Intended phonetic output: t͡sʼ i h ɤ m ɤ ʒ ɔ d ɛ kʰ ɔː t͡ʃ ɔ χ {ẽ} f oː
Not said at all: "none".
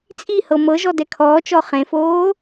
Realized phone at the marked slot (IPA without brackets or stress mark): ẽ